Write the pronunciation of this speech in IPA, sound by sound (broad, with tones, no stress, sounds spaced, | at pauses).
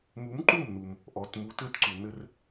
m u˨˥ m ǃ u˥˩ m n u˩ m | ʔ ɔ˩˧˩ t m u˨˥ t ɘ˥˧ t ǀ u˩ n ɘ˥˧ r